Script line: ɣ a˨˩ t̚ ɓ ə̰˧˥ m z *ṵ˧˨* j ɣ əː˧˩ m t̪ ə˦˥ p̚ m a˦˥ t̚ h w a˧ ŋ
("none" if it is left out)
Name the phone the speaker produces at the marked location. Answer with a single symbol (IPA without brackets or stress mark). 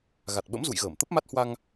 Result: ṵ˧˨